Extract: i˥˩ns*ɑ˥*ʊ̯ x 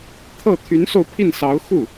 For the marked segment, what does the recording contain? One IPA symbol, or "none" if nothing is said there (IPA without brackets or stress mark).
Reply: ɑ˧˥